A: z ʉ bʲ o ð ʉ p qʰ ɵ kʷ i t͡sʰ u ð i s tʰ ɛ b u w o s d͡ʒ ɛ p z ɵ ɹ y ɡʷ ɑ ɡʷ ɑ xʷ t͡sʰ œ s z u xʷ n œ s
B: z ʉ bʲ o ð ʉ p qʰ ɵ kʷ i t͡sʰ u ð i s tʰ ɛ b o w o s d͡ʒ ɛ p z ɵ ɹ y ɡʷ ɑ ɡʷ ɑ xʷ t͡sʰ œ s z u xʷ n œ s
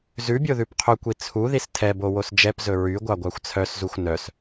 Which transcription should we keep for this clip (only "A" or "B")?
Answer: B